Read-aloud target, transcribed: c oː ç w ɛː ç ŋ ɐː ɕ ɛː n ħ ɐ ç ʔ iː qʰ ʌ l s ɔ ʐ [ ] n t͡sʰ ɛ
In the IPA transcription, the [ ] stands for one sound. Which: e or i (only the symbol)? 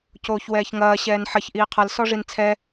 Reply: i